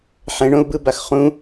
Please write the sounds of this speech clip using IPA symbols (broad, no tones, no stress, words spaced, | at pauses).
ħɛ̃ɳõu̯bɯbax χũ